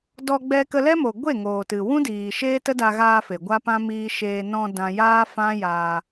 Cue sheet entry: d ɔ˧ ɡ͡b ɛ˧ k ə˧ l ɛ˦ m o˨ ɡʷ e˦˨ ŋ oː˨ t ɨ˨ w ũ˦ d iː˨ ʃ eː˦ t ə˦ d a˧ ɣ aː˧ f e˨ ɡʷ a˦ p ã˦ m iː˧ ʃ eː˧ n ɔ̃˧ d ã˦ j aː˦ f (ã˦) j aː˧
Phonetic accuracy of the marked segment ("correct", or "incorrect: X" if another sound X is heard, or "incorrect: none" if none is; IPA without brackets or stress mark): correct